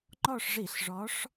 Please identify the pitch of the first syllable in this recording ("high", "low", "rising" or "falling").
falling